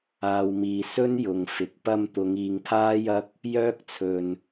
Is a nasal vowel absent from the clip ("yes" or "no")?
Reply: yes